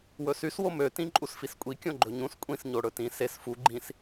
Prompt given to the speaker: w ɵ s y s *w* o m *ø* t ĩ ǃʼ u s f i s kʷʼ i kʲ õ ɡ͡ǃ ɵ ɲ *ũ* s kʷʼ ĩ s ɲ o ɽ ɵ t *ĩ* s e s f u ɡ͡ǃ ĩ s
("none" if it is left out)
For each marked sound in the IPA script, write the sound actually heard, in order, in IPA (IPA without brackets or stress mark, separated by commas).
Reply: w, ø, ũ, ĩ